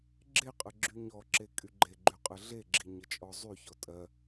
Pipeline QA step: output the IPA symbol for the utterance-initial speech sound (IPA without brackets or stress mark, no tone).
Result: ɡ͡ǁ